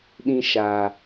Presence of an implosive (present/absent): present